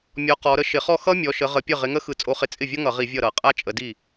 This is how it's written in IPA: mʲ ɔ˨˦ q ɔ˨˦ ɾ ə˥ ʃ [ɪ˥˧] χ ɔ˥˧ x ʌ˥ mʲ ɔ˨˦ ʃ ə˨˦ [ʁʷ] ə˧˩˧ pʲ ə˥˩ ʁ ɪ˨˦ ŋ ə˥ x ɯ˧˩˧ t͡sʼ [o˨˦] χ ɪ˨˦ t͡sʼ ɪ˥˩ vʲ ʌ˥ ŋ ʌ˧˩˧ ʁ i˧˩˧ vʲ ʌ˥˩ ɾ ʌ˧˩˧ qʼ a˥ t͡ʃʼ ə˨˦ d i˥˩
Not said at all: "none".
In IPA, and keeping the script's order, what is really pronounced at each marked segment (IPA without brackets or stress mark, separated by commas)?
ɪ˧˩˧, ʁ, o˨˦